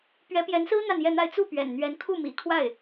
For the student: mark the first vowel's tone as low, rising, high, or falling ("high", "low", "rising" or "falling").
rising